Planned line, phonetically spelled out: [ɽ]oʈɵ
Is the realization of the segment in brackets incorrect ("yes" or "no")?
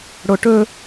no